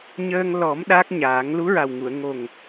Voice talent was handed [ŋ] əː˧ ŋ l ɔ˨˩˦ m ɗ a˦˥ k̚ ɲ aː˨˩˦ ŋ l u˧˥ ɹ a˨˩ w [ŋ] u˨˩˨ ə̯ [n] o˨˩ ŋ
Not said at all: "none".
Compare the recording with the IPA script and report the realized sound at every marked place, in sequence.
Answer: ɲ, ŋ, ŋ

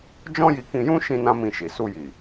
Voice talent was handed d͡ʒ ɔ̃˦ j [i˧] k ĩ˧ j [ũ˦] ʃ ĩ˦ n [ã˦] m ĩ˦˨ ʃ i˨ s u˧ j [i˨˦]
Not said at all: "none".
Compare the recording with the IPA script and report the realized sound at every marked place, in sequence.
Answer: i˧, ũ˦, ã˦, i˨

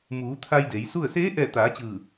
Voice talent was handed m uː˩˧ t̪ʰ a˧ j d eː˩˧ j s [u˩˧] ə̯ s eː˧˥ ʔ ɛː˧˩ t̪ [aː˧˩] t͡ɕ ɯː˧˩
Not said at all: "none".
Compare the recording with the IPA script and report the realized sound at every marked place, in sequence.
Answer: u˥˨, aː˩˧

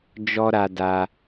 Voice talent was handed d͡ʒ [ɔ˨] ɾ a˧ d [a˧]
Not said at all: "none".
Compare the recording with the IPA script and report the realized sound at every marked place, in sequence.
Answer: ɔ˦, a˧

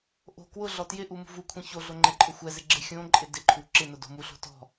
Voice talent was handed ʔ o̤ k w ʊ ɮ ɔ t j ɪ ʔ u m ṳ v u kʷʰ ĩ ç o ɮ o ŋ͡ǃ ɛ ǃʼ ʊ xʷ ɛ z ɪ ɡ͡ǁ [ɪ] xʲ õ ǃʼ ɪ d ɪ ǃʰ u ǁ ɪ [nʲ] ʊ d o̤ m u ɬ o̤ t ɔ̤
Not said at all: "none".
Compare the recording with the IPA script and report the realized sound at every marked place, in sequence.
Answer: ɪ, n

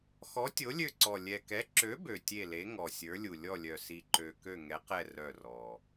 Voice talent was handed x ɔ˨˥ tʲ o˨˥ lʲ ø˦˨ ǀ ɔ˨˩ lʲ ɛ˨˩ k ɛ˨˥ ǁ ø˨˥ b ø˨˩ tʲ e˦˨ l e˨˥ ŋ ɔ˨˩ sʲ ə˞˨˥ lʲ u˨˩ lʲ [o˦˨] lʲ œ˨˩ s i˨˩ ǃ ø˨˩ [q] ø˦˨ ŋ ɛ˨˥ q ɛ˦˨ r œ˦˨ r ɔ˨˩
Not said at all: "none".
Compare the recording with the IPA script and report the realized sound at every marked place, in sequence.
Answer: ɔ˦˨, k

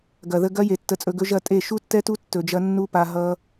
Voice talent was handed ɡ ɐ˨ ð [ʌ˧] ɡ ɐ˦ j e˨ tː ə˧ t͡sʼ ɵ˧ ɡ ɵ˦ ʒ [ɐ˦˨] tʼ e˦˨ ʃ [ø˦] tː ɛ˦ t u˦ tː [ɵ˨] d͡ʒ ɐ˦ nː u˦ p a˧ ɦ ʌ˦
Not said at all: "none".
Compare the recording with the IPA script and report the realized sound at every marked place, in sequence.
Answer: ə˧, ɐ˦˨, u˦, ɵ˧

